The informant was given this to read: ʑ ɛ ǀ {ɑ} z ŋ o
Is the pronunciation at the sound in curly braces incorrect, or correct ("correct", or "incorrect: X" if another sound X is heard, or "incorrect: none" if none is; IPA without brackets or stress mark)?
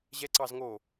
correct